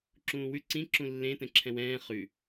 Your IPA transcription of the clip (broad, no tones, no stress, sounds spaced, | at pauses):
ǁ ũː w ʉ ǀ ĩ ǁ ũ lː ẽ t ɛ̃ ǁʰ ɛ̃ w ɛ̃ː χ ʉ